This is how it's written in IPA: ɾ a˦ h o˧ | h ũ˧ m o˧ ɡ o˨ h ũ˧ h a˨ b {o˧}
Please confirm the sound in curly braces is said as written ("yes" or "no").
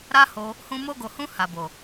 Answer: no